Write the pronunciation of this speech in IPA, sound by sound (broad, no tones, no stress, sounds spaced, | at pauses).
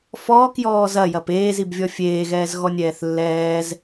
f ɔː k j ɔː z ɐ j ɐ p eː z i b vʲ ɔ fʲ eː ɣ ɛː z ɣ ɔ nʲ ɛː θ lː ɛː z